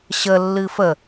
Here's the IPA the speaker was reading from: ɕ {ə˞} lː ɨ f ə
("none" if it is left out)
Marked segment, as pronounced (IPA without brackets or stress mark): ə